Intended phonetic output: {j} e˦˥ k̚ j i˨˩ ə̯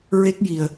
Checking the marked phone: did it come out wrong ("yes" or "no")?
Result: yes